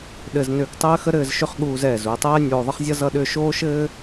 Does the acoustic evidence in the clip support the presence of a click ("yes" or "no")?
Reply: no